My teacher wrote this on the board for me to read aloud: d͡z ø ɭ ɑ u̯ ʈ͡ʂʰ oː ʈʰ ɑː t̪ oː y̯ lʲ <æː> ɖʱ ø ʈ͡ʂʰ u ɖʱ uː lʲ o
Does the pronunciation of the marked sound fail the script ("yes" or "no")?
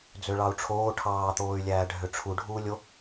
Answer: no